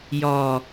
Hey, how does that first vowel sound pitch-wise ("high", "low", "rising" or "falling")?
low